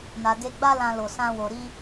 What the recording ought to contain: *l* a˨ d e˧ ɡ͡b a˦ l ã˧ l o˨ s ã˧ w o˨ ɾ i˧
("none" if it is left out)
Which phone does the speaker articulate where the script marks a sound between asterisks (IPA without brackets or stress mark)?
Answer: n